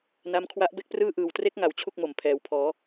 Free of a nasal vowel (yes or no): yes